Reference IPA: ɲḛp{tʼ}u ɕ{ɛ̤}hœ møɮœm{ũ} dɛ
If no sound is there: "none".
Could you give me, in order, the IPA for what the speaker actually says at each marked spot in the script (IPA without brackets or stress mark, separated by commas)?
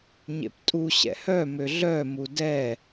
tʼ, ɛ̰, u